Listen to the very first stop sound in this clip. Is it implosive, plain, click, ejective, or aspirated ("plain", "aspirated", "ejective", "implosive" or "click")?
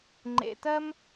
click